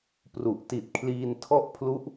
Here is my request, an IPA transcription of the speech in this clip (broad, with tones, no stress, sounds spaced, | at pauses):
p r u˨˩ ʔ t i˨˩ t̚ kʰ l iː˧ n tʰ ɔ˥˩ ʔ pʰ l u˦˥ ʔ